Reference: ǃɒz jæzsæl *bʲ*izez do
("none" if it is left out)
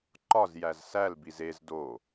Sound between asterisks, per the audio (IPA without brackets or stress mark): b